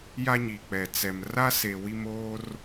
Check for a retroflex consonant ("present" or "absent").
absent